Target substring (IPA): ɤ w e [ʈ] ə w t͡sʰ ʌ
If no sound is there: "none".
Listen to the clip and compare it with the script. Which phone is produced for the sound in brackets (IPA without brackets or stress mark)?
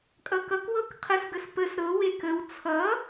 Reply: k